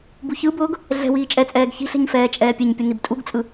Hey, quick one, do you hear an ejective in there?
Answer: yes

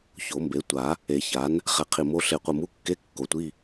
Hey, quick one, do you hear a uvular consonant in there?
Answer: yes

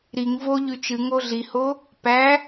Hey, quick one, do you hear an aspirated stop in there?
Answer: no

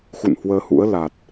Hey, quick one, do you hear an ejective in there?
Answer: no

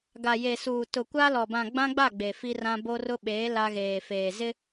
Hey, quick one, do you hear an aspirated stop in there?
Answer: no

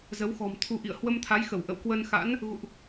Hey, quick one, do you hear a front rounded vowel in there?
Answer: no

